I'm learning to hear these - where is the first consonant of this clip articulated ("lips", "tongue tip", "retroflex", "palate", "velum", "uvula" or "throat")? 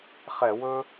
uvula